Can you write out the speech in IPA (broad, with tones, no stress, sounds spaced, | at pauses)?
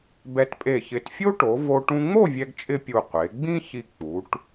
b ɛ˧ t pʼ e˧˩ ç ɪ˧˩ t fʲ o˥ ʈ o˩˧ v o˧ ʈ ũ˧ ŋ͡m o˥˧ vʲ ɛ˧ ɡ t͡ʃʼ ɪ˧ pʲ u˧˩ qʷ e˩˧ ɡ͡b ĩ˥ ç i˧ k͡p u˩˧ ʈ